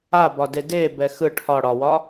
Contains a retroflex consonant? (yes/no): yes